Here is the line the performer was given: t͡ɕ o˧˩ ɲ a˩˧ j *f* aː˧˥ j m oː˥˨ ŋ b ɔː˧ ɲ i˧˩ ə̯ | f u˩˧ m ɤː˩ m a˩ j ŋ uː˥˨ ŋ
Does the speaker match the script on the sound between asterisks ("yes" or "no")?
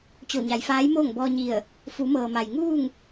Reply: yes